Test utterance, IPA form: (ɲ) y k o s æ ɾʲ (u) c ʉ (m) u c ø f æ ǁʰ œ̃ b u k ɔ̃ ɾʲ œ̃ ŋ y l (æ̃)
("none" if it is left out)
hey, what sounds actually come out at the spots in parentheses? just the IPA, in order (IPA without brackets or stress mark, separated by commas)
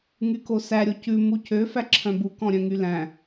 ŋ, o, m, æ̃